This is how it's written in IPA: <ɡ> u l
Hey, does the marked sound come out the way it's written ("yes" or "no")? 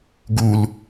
yes